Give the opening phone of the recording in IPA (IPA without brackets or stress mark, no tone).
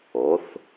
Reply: o